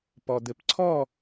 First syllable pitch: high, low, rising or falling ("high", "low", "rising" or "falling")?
low